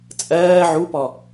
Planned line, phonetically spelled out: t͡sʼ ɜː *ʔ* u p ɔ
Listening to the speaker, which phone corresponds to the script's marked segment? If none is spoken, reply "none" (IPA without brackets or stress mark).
ʕ